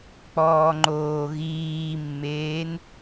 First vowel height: mid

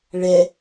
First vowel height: mid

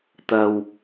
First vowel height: low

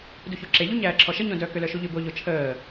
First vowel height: high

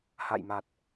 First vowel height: low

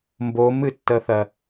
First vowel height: mid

